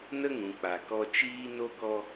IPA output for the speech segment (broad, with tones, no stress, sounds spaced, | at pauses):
n ə˦ ŋ ũ˨ k͡p a˨ k ɔ˧ t͡ʃ iː˦ n o˦ k ɔ˦